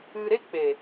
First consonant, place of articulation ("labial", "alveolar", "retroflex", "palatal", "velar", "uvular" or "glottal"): alveolar